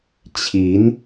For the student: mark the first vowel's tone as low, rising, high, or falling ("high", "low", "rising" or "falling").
rising